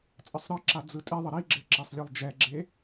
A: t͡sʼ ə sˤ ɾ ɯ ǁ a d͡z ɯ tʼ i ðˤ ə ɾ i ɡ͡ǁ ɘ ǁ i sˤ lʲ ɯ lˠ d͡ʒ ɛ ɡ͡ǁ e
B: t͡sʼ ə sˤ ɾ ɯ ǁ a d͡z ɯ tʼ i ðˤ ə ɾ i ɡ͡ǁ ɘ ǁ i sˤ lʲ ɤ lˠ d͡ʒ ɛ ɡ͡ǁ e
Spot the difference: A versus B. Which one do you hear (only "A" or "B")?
A